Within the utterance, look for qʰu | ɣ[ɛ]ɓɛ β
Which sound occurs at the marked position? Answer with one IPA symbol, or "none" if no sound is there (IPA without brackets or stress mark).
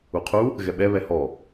ɛ